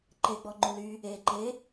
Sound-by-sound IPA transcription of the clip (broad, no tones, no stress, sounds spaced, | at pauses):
ǃ e ɡ͡b ɔ ŋ͡ǃ u l y | e ǃ e